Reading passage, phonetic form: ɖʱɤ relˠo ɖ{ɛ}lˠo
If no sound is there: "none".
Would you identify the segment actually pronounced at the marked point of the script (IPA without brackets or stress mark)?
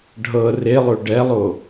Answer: ɛ